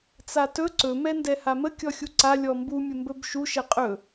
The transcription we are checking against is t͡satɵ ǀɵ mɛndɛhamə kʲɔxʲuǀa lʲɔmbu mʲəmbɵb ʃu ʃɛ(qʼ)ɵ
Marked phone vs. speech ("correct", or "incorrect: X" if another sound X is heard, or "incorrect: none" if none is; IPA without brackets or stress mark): correct